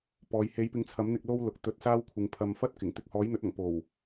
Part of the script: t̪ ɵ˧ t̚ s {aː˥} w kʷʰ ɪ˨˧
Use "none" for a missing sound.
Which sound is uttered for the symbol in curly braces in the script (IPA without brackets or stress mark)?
aː˥